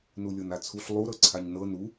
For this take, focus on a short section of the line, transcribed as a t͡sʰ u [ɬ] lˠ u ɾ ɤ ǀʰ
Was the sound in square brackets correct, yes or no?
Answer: yes